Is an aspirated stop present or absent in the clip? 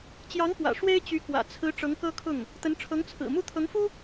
present